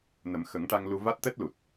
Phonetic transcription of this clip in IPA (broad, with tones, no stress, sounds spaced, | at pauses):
n ə˨˩˦ m x ə˨˩˦ ŋ ʈ a˧ ŋ l u˧ v a˦˥ t̚ t̪ ɛ˦˥ t̚ l u˨˩ t̚